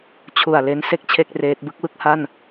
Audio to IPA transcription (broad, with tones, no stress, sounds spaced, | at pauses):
t͡ɕʰ u˨˩ a̯ l e˦˥ n s e˥˩ k̚ t͡ɕʰ e˥˩ k̚ r eː˦˥ t̚ b ɯ˥˩ k̚ w ɯ˥˩ k̚ h a˥˩ n